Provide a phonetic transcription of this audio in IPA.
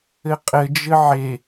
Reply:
ɘ qʼ ɘ d͡ʒ ɘ ʕ e

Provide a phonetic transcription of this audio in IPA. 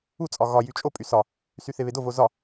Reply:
u t͡sʼ ɒ ɣ ɒ j y t͡ʃʼ o pʼ y s ɒ | s y θ e β e d o v o z ɒ

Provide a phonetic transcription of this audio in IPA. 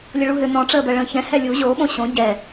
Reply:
lʲ ə ɭ u ɦ ʏ n ɔ̃ ʈ͡ʂ əː b ɜ ɭ ə̃ː ç ɛ̃ h ɛ lʲ u ʑ o ɓ õ ɕ õ ɟ ɛ

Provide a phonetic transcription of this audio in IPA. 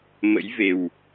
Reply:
m ə̰˧˥ j v e˨˩ w

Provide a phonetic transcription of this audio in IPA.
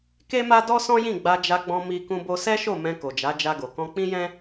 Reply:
k e˦ m a˦ d ɔ˦ s ɔ̃˦ j ĩ˦˨ ɡ͡b a˧ d͡ʒ a˧ ɡ͡b ɔ̃˧ m i˧ k ũ˧ b o˧ s ɛ˦ ʃ o˦˨ m ɛ̃˧ k o˨ d͡ʒ a˨˦ d͡ʒ a˧ ɡ o˨ k ɔ̃˧ k͡p ĩ˦ j ɛ̃˦

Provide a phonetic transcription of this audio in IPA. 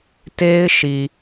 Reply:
t e˦ ɪ̯ ʃ i˨

